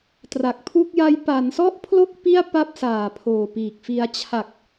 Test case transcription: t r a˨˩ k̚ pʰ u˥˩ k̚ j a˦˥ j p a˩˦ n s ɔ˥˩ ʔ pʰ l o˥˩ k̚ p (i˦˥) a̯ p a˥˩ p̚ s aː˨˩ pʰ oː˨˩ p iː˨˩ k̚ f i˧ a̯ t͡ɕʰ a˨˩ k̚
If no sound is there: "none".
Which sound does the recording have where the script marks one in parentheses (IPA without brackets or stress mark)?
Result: i˥˩